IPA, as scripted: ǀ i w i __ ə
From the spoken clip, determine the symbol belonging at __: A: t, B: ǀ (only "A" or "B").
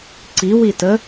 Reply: A